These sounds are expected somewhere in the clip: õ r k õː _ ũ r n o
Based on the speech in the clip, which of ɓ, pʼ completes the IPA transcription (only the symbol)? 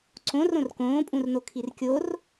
pʼ